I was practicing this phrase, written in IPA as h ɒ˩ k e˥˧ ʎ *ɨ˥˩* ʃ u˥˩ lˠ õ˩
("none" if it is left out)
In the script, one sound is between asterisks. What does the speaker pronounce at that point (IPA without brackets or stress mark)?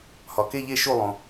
e˥˩